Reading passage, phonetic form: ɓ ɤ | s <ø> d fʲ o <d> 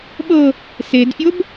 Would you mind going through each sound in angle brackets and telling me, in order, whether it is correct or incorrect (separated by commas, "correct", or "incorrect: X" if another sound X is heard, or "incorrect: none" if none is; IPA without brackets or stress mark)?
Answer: incorrect: e, incorrect: b